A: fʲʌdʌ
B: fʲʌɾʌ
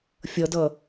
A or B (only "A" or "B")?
A